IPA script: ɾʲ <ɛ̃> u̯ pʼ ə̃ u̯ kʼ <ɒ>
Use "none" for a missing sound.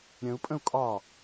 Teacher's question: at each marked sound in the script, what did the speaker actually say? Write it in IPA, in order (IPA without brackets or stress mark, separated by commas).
ə̃, ɒ